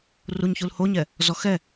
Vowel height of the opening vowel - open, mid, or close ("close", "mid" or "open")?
close